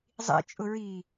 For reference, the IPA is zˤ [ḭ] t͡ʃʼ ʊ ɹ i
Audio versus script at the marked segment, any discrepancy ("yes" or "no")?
no